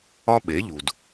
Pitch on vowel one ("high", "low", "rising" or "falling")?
high